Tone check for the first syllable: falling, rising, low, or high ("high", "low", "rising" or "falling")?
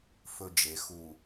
high